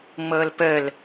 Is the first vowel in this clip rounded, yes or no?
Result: no